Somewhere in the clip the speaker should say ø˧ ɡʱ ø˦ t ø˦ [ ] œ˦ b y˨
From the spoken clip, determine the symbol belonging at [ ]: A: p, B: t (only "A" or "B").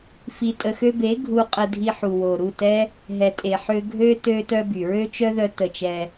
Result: B